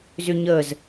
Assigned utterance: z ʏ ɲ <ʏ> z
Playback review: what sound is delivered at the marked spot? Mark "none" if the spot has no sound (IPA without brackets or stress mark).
ə